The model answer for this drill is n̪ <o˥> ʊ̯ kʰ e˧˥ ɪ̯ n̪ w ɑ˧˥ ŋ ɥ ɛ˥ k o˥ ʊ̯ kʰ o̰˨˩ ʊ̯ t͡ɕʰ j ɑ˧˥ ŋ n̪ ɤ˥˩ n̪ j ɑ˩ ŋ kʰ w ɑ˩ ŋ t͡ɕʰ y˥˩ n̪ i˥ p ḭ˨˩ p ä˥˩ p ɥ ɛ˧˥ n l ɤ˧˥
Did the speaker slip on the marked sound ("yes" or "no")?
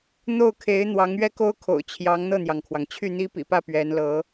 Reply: yes